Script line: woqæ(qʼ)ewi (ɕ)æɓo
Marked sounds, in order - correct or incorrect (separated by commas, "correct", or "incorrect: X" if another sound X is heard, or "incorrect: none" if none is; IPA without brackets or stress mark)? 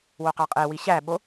correct, correct